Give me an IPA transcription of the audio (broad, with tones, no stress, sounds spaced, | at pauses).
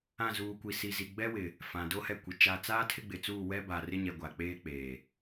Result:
ã˦˨ z uː˨ kʷ i˨ s i˨ z i˨ ɡ͡b ɛ˦ w ɪ˨ | f ã˨ d o˦ h ɛ˦˨ kʷ i˨ t͡ʃ a˨ t͡s aː˦ tʰ ɪ˦ ɡ͡b ɪ˨ t͡s uː˦˨ w ɛ˦ b a˨ r ɪ˦ ɲ ɛ˨ ɡʷ a˨ k͡p eː˦ k͡p eː˨